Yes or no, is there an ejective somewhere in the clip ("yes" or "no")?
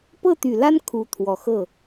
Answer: no